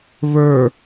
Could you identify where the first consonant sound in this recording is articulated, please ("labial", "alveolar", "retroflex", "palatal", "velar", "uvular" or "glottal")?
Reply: labial